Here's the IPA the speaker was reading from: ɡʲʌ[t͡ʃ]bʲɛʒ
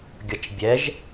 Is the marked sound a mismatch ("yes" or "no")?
no